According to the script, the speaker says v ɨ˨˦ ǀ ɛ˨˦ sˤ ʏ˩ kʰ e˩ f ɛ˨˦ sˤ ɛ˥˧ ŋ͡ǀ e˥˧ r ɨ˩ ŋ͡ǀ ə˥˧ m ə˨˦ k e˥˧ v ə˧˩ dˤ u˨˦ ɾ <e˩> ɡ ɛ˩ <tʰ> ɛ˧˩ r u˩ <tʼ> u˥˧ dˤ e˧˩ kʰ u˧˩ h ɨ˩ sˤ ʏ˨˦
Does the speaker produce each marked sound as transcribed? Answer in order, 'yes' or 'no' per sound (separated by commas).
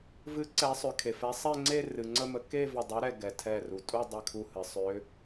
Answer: no, yes, yes